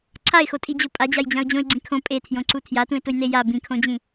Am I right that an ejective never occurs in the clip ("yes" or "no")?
no